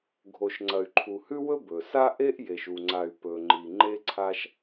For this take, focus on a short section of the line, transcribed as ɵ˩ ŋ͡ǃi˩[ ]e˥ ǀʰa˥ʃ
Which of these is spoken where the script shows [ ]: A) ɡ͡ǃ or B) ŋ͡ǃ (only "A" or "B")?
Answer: B